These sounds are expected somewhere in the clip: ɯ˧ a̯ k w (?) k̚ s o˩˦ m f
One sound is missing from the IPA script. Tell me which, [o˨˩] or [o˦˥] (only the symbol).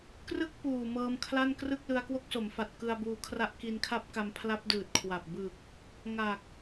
o˦˥